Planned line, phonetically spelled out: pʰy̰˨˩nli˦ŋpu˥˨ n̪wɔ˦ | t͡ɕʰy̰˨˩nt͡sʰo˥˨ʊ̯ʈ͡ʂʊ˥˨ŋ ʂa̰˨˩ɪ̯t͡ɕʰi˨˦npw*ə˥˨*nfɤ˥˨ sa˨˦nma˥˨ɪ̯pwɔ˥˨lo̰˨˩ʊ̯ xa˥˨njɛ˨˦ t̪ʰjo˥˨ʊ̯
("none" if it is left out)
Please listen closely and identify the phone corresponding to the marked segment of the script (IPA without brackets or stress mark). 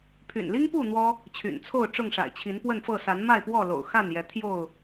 ə˥˨